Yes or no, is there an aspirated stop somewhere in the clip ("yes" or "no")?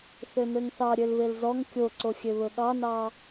no